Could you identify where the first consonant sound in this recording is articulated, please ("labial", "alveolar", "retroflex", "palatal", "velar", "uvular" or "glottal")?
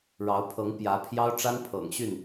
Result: retroflex